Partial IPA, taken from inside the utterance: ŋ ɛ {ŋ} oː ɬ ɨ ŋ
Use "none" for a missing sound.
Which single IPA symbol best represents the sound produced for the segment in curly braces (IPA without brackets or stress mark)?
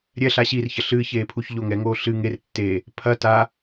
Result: ŋ